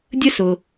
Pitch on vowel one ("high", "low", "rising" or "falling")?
high